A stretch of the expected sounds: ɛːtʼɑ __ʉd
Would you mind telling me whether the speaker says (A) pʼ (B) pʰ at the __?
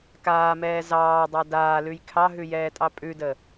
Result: A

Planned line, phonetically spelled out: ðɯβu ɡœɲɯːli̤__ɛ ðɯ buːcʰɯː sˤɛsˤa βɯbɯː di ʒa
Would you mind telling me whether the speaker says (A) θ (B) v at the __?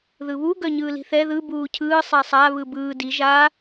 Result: A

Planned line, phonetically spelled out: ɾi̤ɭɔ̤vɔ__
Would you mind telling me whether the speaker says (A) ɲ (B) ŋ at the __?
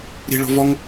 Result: B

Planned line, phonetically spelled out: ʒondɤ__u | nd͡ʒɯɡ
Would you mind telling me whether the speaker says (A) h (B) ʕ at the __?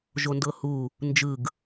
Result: A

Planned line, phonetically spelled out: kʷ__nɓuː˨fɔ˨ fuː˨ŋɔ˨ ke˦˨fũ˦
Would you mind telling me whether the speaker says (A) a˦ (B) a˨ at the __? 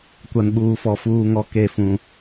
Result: B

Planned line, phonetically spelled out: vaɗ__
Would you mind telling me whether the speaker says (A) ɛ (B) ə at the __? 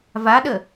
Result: B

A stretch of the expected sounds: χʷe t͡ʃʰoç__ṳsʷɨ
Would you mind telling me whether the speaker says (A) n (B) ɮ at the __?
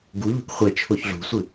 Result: B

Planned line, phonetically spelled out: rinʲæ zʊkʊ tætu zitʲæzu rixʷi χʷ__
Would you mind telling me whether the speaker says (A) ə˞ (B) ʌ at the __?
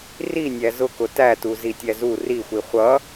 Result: B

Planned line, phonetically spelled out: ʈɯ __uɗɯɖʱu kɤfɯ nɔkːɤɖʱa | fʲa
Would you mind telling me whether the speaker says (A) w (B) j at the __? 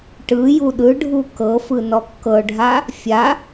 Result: B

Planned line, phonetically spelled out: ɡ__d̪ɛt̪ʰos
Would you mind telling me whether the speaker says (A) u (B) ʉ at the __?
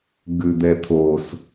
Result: B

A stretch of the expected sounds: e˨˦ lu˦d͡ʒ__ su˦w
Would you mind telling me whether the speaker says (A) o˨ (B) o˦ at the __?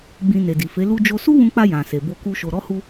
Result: B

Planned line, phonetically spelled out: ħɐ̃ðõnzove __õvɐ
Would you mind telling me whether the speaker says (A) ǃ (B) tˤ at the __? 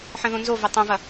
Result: B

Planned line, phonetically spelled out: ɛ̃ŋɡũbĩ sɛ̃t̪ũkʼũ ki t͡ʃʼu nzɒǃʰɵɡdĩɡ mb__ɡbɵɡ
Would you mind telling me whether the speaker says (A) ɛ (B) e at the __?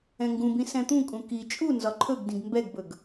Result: A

